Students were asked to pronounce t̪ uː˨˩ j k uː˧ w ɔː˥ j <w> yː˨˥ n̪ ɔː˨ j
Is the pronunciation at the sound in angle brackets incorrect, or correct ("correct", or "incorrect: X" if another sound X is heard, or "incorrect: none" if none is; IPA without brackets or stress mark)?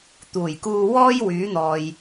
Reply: correct